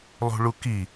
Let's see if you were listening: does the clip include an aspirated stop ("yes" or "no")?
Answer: no